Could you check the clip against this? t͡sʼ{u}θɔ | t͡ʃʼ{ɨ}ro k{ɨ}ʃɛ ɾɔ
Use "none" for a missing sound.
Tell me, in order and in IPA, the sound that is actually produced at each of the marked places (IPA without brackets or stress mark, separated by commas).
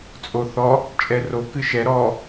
o, ɛ, ɨ